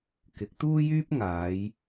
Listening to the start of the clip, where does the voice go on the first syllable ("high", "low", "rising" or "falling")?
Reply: rising